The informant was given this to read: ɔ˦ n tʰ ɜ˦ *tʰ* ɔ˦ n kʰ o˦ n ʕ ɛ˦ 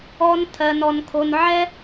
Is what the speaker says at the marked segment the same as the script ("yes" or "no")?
no